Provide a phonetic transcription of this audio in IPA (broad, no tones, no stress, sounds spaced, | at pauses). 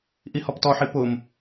ʔ i h ɔ p t ɔ ħ i p ʊ m